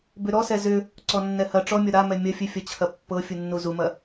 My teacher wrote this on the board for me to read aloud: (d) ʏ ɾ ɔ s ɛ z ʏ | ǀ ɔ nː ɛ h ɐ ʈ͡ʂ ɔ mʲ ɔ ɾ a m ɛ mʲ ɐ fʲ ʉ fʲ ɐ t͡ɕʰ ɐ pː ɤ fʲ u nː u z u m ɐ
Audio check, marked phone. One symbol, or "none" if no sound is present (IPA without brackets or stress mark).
b